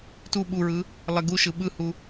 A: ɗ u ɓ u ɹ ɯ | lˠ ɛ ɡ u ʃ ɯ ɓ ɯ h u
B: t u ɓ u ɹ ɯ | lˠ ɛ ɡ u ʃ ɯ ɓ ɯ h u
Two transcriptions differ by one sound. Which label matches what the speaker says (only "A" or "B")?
B